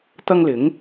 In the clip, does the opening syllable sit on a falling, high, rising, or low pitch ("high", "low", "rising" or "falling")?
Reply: high